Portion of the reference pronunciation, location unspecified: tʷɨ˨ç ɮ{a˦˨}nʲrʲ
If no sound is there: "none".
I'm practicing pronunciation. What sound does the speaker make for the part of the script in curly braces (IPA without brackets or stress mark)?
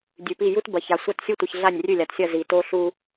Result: a˦˨